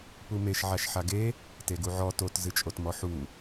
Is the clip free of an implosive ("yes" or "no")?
yes